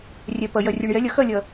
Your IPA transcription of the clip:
rʲ ɛ˩ p ɐ˩ j ɐ˩ rʲ u˩ ɳ j ɛ˩˥ lʲ ɐ˩˥ x ɐ˥˩ lʲ ɐ˩

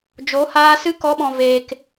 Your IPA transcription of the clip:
d͡ʒ o˨˦ h aː˧ s ɨ˧ k ɔ˨˦ ɓ ɔ̃˨ v eː˨ k

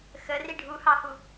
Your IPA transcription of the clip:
x ə r i ɖʱ u h ɑ h u

